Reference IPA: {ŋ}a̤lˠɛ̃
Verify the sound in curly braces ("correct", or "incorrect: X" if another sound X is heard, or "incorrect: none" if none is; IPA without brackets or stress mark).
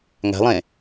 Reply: correct